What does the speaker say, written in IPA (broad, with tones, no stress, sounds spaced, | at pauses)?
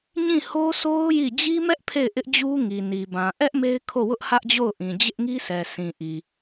ɲ ĩ˦˨ h o˦ sʰ o˦ ʊ̯ j i˦˨ d͡ʑ i˦ m ɛ˦ ʔ pʰ e˦˨ ɪ̯ ʔ ɪ˦ ʔ d͡ʑ u˦ ŋ i˨ n i˨ b ã˨ ʔ ɛ˦ ʔ m e˦ ɪ̯ kʰ o˦˨ w ʊ˦ ʔ h ä˦ ʔ d͡ʑ o˦˨ ʊ̯ ʔ ĩ˨ d͡ʑ ɪ˦ ʔ ŋ i˦ sʰ ɛ˨ sʰ ĩ˨ ʔ i˨